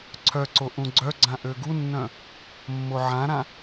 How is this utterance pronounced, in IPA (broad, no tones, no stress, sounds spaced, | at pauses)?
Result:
ǀʰ œ ǀ o ʔ ũ ɡ͡ǀ œ ɡ͡ǀ ã ʔ ø ɡ u nː œ̃ | mː o ʕ ã ɾ ã